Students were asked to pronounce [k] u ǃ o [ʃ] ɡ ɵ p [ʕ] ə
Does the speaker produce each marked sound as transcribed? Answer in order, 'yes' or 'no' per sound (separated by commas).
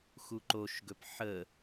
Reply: no, yes, no